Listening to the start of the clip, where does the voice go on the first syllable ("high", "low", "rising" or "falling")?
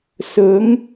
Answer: rising